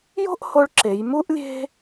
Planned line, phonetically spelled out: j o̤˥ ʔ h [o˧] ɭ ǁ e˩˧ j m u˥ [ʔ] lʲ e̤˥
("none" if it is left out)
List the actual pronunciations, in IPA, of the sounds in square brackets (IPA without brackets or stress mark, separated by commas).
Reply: o˧, ʔ